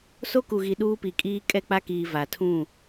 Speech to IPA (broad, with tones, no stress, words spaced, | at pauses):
so˦ku˨ɣi˨ ɗuː˦pi˨kʼiː˦ kʼɛ˦k͡pa˦kiː˨ va˨tʰũ˦˨